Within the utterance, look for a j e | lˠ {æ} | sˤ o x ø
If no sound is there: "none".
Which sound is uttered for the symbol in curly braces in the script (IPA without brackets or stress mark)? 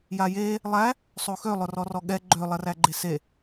æ